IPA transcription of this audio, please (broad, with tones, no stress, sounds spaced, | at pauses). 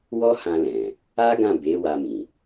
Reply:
w ɔ˦ h ã˧ l ɛ̃˨ | a˦ ɡ ã˦˨ b e˨˦ w a˧ m ĩ˨